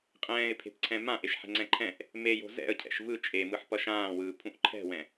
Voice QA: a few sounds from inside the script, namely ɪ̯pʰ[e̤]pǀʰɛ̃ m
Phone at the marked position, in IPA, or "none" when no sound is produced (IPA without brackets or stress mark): e̤